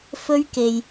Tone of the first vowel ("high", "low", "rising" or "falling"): high